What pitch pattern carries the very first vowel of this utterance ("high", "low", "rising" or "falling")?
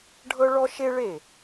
high